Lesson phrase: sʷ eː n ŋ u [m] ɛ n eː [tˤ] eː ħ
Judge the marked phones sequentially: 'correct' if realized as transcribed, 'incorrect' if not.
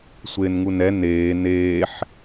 incorrect, incorrect

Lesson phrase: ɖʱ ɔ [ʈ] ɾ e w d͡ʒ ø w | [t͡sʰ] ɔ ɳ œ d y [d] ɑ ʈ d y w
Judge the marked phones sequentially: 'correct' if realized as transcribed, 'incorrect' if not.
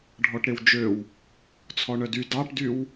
correct, correct, correct

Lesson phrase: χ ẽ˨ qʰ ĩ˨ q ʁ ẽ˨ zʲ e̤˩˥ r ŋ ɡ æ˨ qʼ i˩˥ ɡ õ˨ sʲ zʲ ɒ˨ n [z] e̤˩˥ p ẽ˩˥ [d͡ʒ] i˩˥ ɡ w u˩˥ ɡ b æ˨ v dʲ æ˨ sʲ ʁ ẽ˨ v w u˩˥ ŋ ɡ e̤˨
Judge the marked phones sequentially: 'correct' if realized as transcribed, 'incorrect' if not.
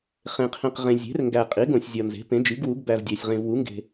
correct, correct

